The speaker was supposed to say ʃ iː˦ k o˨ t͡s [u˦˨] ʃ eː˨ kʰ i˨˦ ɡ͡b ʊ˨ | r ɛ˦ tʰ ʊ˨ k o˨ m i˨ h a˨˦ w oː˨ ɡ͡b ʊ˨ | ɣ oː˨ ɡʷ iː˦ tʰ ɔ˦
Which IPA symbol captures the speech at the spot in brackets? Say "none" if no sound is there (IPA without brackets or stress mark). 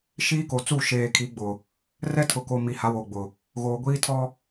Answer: u˦˨